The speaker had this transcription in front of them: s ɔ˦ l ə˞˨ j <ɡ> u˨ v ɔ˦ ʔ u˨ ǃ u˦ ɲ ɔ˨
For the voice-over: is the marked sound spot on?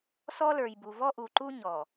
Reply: no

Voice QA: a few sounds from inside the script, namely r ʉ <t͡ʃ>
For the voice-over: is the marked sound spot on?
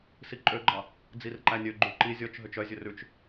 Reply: yes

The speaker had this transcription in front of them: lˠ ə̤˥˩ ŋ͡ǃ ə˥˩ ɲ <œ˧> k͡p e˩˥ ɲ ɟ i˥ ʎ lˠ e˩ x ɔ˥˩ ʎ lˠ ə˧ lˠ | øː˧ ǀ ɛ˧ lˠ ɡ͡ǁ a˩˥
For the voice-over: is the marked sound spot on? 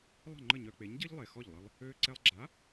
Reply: yes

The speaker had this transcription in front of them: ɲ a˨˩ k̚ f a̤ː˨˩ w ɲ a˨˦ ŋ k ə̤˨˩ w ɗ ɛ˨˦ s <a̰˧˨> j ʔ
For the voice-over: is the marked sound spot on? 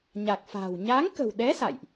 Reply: yes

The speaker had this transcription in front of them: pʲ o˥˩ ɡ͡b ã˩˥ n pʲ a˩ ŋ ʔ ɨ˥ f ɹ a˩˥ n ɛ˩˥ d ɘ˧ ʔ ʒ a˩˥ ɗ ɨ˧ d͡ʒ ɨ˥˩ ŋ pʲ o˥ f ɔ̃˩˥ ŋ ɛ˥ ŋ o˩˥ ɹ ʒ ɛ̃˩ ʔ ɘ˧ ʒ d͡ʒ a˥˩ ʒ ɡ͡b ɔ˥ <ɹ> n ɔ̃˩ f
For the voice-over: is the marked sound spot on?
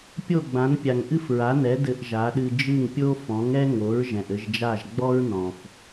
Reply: yes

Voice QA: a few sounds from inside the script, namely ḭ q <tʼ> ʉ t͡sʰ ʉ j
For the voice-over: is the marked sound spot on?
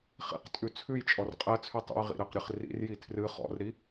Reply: yes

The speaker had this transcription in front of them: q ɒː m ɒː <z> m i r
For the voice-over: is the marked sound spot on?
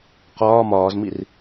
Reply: yes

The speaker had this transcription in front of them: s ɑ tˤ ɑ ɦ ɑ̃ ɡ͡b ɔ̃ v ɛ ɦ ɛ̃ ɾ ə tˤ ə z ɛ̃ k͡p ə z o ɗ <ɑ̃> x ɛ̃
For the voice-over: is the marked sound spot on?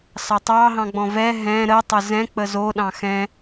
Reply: yes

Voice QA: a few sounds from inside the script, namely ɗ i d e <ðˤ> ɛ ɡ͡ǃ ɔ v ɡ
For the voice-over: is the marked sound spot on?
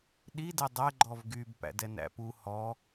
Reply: no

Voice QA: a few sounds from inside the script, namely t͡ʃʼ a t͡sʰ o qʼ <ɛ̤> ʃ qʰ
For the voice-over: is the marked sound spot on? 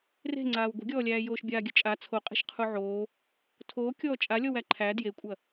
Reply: no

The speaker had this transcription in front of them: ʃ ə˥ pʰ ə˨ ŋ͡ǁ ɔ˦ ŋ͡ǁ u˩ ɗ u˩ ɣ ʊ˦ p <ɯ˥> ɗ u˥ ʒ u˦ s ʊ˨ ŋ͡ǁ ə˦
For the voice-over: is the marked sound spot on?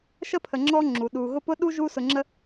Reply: no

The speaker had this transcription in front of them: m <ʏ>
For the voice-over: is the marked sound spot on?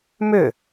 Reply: yes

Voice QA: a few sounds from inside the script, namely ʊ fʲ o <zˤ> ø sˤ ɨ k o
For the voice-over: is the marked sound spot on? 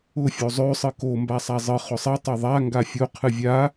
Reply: yes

